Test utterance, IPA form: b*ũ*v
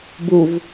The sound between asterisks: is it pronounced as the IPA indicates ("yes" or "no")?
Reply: no